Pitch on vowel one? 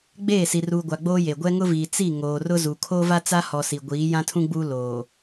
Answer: falling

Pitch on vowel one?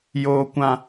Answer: high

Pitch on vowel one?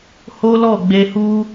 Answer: high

